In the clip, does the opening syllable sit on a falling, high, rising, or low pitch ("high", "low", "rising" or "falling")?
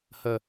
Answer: low